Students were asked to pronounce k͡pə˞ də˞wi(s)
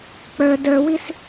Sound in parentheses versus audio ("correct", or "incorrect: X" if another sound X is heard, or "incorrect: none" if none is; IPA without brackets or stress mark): correct